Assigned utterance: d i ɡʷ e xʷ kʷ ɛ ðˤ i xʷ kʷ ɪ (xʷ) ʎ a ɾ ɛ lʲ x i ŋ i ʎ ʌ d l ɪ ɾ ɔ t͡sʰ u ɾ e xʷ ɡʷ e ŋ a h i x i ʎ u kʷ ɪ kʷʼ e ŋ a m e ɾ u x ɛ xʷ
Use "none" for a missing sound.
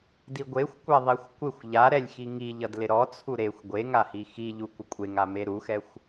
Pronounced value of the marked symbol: xʷ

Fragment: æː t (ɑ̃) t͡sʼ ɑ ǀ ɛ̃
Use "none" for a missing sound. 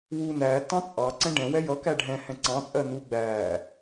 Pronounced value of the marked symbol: ɑ̃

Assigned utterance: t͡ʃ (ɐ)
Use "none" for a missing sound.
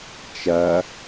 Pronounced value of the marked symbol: ɐ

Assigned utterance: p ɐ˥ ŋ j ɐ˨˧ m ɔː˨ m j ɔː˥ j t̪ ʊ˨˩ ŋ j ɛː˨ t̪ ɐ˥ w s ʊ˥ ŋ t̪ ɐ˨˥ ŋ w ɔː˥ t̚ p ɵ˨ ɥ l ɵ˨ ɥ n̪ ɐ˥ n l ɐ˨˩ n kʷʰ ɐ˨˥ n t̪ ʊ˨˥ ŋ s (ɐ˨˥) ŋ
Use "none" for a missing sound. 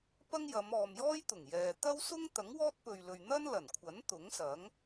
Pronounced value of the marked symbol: ɐ˨˥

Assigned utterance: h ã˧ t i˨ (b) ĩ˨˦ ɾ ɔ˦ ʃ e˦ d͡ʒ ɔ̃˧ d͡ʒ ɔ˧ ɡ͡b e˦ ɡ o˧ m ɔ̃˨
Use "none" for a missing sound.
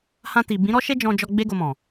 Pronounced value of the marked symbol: b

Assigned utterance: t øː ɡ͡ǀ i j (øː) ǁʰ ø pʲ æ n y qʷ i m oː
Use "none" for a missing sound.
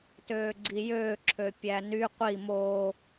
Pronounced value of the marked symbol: øː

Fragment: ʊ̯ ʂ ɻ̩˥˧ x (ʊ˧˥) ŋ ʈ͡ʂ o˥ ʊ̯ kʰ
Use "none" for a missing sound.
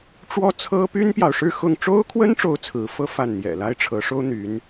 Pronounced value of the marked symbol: ʊ˥˩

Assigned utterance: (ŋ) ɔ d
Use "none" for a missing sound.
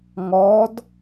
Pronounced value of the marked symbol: ŋ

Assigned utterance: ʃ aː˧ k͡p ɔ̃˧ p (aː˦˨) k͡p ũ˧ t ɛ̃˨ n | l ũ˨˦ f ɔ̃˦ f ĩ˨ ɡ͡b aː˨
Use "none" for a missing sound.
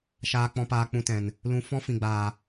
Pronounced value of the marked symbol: aː˧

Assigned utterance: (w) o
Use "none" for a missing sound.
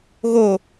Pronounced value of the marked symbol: ɣ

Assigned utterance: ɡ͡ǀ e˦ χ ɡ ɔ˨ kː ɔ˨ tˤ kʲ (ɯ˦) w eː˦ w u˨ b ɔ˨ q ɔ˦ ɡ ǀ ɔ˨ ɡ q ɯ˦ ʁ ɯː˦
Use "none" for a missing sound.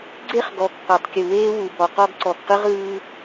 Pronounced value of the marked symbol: ɯ˨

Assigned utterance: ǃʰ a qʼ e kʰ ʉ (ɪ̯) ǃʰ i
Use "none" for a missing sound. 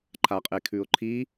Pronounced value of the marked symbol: ʊ̯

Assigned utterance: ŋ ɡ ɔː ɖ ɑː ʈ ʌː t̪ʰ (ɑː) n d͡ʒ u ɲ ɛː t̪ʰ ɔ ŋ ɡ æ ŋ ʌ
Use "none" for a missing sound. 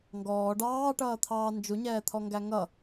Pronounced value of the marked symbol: ɑː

